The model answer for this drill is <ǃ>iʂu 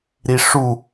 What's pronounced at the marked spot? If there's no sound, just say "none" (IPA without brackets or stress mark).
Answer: ɾ